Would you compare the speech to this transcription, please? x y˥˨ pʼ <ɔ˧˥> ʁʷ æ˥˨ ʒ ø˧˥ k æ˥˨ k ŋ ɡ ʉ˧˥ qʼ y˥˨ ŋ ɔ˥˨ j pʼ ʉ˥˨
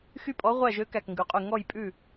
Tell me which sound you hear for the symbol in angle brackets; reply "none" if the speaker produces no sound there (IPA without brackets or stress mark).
ɔ˧˥